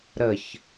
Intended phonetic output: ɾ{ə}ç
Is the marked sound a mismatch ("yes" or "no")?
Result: no